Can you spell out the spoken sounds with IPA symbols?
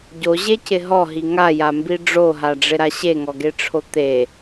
ɟ o ʑ e c ɪ ɦ ɔ ɦ i ŋ a j a m b i ɖ͡ʐ o ɦ a ɖ͡ʐ ɪ ɾ a ɕ e ŋ ɔ ɡ e ʈ͡ʂʰ o t̪ e

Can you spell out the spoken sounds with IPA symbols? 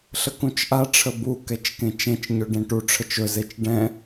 ɬ ə k ũ t͡ʃ ʔ a ʈ͡ʂʰ ə b u k ɛ t͡ʃ k ẽ t͡ʃ ẽ t͡ʃ ɲ ɵ ɖ ẽ ʈ u ʈ͡ʂʰ ə t͡ʃ ɵ z e t͡ʃ ɖ ɛ̃

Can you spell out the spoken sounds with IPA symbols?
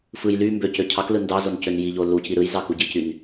f ɯ j l y m b ø c ø cʰ ɑ k l ɯ n d ɑ z o n c ø n j i ʎ o l u c i ɾ ɯ j z ɑ k u ɟ i c y n

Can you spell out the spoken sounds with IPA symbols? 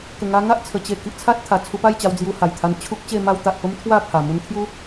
k ə˨˩ ŋ a˧ ŋ a˦ ʔ t͡sʰ ə˨˩ t͡ɕ e˧ k i˨ ʔ t͡sʰ a˦ t̚ t̪ʰ a˨˩ t͡sʰ u˧ p a˥˧ j t͡ɕ a˧ w d͡z j u˧ h a˨˩ j t̪ʰ a˧ n t͡ɕʰ u˦ k̚ t͡ɕ e˥˧ m a˦ w t̪ a˨ ʔ p ə˦ m t̪ʰ w a˥˧ pʰ a˨˩ m u˧ n t̪ʰ j u˦

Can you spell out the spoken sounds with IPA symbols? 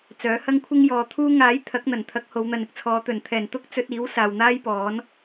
t͡s œː˨˥ h ɐ˥ ŋ kʷʰ ɪ˥ ŋ j ɔː˨ t̪ʰ uː˥ ŋ aː˨˥ j t̪ʰ ɐ˨˥ k̚ n̪ ɐ˨˩ n t̪ʰ ɐ˨˥ k̚ h o˨˧ w n̪ ɐ˨˧ n ɪ˥ k̚ t͡sʰ ɔː˨˧ t̪ ɵ˨˩ n t̪ʰ ɛː˨˩ n t̪ ʊ˥ k̚ t͡s ɵ˧ t̚ iː˨˥ w s aː˨ w n̪ aː˥ j p ɔː˨˥ n

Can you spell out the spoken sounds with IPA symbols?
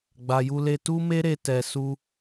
ɡ͡b a˨ j u˧ l e˧ t u˦ m e˦ ɾ e˧ t ɛ˨ s u˧

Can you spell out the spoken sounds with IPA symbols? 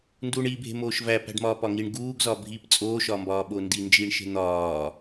n d uː ɳ i bʱ e̤ m oː ʃ v æ p æ̤ ɖ m ɒː p ɒ ŋ i ɳ ɡ uː ɡ z ɒ bʱ iː p t͡sʼ oː ʃ ɒː m b ɒː ɓ o n d i n d͡ʒ iː ɳ ʃ e̤ n̪ ɒː

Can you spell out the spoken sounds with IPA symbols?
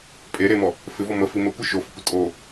pʼ e ɾ e m ɔ | f ɪ v ɔ m ə f i m ə kʷ ɪ ʃ o f ə kʷ ə tʼ o

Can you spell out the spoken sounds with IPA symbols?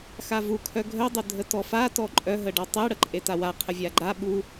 x a v u kʰ œ ɡʱ œ dˤ œ dʱ ə t ɔ f a t ɔ ǃʼ œ ɦ ə ɖ ɔ tˤ e ɽ ə ǃʼ e t a w a qʰ ə vʲ a ɡ͡ǃ a ɓ u

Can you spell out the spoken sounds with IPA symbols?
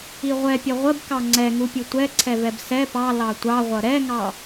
i ʁʷ ɛ pʲ ʌ ʁʷ ə b k ɑ ŋ͡ǀ ɛ ŋ u pʲ u tʷ ɛ ǀʰ ɛ v ɛ b s ɛ p ɑ l ɑ tʷ ɑ ʁʷ ʌ ɾ ɛ ŋ ɑ

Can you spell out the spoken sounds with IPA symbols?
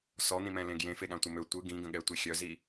s ɔ n̪ ĩ m ɛ̃ l ẽ ɡ j ẽ f e ɠ ã tʷ ə m ø tʷ ɯ ɡ ĩ ɡ ə̃ ɠ ɛ tʷ i xʲ œ z i

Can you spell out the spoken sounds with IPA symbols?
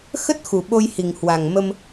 x ə˦˥ t̚ x u˨˩ ɓ o˧ j h i˨˩ ŋ h w a˨˩ ŋ m ə˧ m

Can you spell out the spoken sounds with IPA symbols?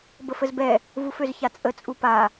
b ə f ə z b ɛ | v u f ø z ç a t͡sʼ ə t͡sʼ u p a

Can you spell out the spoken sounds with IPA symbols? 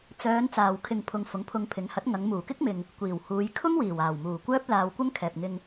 t͡s œː˨˧ n t͡s aː˧ w kʰ ɪ˧ ŋ pʰ ʊ˨ ŋ f ʊ˨˥ ŋ pʰ ʊ˧ ŋ pʰ ɪ˨˥ ŋ h ɐ˨˥ t̚ ŋ ɐ˨˧ ŋ m uː˨˩ k ɪ˥ k̚ m ɪ˨ ŋ | kʷ iː˨˩ w h uː˨˧ j kʰ ʊ˥ ŋ w iː˨˩ w aː˨˩ w m uː˨˩ kʷ œː˥ p̚ l aː˧ w kʷ ɐ˥ ŋ kʰ ɛː˨ p̚ ŋ ɪ˧ ŋ

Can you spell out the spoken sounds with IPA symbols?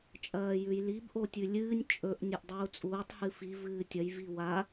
t͡ʃʼ ɐː j ʉ j l i b ʔ o tʲ ʉ lʲ ɨː nʲ t͡ʃʼ ɵ ʔ nʲ ɵ ʔ dˤ uː t͡sʼ uː tˤ h ɨ f i v ɨː tʲ ɐ j v i w a

